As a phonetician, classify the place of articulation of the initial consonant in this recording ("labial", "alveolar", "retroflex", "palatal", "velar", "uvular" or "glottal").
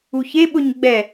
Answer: palatal